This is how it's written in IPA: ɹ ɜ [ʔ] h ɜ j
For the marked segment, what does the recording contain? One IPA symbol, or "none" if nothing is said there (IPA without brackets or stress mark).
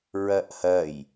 ʔ